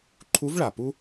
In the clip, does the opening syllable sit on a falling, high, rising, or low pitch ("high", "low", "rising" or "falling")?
rising